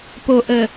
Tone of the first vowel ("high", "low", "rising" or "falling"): low